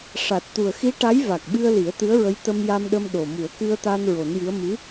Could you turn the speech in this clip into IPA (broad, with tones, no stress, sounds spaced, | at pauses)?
ʂ a˨˩ t̚ t̪ u˨˩ ə̯ x i˧˥ ʈ a˧˥ j v a˨˩ k̚ ɓ ɨ˧ ə̯ l i˨˩˦ ə̯ t̪ ɨ˧˥ ə̯ ɹ ə˧˥ j t̪ ə˧ m j a˧ m ɗ ə˧ m ɗ o˨˩ m u˨˩˦ ə̯ k ɨ˧ ə̯ t̪ a˧ n ɹ o˨˩˦ n j ɨ˧˥ ə̯ m ɨ˧˥